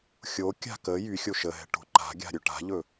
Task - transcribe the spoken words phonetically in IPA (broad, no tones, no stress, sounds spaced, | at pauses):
xʲ o kʲ a̤ k ə j y xʲ o ʃ ə ɦ ɛ̤ ʈ o̤ ǃ a̤ ɡʲ a̤ ɾʲ ɵ ʈ a̤ ʎ ɵ